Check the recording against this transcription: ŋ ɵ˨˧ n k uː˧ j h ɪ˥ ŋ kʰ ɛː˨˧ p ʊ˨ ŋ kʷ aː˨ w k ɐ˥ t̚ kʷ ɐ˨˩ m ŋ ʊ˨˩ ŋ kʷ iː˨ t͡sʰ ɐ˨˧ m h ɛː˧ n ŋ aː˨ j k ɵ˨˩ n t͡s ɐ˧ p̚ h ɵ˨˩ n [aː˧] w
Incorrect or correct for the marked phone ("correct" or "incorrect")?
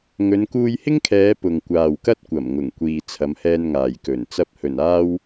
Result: correct